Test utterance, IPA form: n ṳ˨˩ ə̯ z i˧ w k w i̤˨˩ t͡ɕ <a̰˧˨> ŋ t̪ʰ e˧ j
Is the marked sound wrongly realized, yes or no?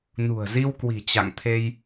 no